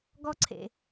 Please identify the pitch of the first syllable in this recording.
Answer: high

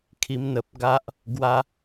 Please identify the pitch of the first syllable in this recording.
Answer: high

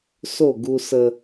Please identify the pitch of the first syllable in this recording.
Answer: falling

